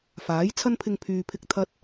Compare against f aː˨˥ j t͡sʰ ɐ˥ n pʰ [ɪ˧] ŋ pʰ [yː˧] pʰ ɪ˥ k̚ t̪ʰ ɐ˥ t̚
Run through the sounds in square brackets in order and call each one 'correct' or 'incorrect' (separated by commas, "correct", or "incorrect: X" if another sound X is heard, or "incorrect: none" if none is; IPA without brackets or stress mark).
correct, correct